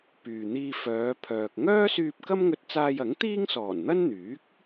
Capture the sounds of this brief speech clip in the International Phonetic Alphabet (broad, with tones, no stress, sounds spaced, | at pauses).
p yː˨ n̪ iː˧ f œː˨˧ pʰ œː˨ k̚ ŋ œː˥ s yː˧ p̚ k ɐ˥ m ŋ ɵ˧ t̚ t͡s aː˧ j ɐ˨˥ ŋ t̪ iː˥ ŋ s ɔː˨˩ n n̪ ɐ˥ n n̪ yː˨˥ k̚